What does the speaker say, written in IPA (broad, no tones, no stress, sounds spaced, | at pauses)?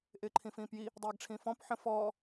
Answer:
ʔ ɪː ǃʰ ĩ f ĩː p j i | dˤ eː ɡ ʈ͡ʂʰ ĩ f ɔ̃ p ħ ə̃ f ɔː